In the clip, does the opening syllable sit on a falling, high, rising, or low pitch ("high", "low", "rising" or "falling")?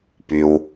low